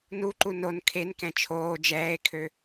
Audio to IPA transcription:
n u ǃ u n o n kʰ e n k ɛ̃ t͡ʃʰ oː d͡ʒ ɛː e̯ kʰ ø

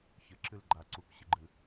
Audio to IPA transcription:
ç ɘ ǁ ɨ l ɡ͡ǃ a ǀ u k ɕ ɨ ɡ͡ǃ ɨ

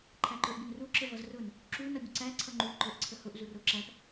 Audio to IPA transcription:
ǃʰ æ ǃ ə˞ ʔ bʲ ə n r u ǁ ə v ʌ z r ʊ n | ǁ u n ʌ bʲ ʊ ǀ æ ǀʰ ʌ ŋ͡ǃ u ǃ ə˞ ʔ ǀʰ ə h ʊ ʔ z u r ʊ ǁ æ p

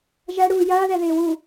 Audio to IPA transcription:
ʒ æ ɽ uː j ɐː ð ɛ ð ɪː w uː

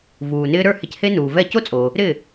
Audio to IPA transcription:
v uː˩ n ɪː˧ ɾ ə˞˥˩ h ɪ˧ c h e˥ n uː˩ v ɛ˥˩ c o˥ t͡sʼ o˩ | ɾ ɪ˥˩

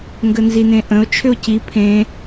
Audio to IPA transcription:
ŋ ɡ ə n z i n ẽ ʔ ə̃ o̯ t͡ʃʰ ʏ o̯ c i pʰ ẽ

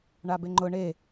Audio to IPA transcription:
ɳ a b e ŋ͡ǃ ʊ ɳ e

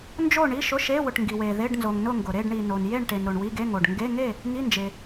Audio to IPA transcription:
n d͡ʒ o˥˨ ɳ i˧˥˧ ʃ ʊ˧˥˧ ʃ e˧˥˧ w ʊ˨ ʈ ŋ ɡ i˨ w e˨ ð e˧˥˧ ɖ n z o˨ ŋ n ʊ˥˨ ŋ ɡ ʊ˨ ɾ e˥˨ ɖ ɳ i˨ n o˨ n j e˥˨ ɳ ʈ e˨ n ɾ o˨ ɳ w i˧˥˧ ɡ e˧˥˧ ŋ o˨ ɖ ŋ ɡ e˧˥˧ ŋ e˥˨ | ŋ i˧˥˧ n d͡ʒ e˨

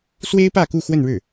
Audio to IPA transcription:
s w e˥ ɪ̯ p ä˥˧ k u˥˧ x w ə˥˧ n ɻ ɻ̩˥˩

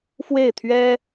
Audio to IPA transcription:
f w e˥˩ ɪ̯ t̪ʰ ɥ ɛ˥

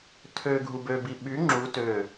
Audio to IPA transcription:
tʰ ø ɡʱ u b ø b i ɓ y ŋ͡ǁ u t ø

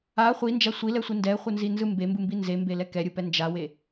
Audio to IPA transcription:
a χʷ i n d͡ʒ a sʷ i l ɛ sʷ i n d ɛ χʷ ɯ n z i n z ɯ m b e m b ɯ m b i n z e m b e l ɛ k ɛ ɾʲ ɯ p ɛ n d͡ʒ a w e

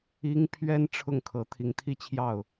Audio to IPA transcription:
i˥ ŋ pʰ ɥ ɛ˥ n ʈ͡ʂʰ ʊ˥˩ ŋ kʰ ɤ˧˥ t̪ʰ i˧˥ ŋ t̪ʰ i˥ t͡ɕʰ j ɑ˥˩ ʊ̯

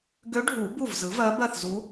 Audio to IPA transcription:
ɡ ø˧˥ ɖʱ u˨˩˦ b u˥˩ v z ɯ˩˥ v ɜ˧˥ b ɜ˥˩ θ z u˧˥

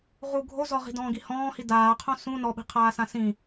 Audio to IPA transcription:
ʁ u ɡʱ o z ɔ ʁ i̤ d ɔ̃ː ɡ i h ɔ̃ː h i d aː qʰ õ s ũ n ɔ ɓ i̤ qʰ aː s ã s ĩ

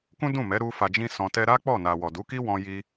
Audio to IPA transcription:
k ũ˦ d ũ˦˨ m ɛ˨˦ ɾ u˦ f a˧ d͡ʒ ĩ˦ s ɔ̃˧ t ɛ˦ ɾ a˦ k͡p ɔ˦˨ n a˨ w ɔ˨ d u˨˦ k i˦ w ɔ̃˧ j i˧

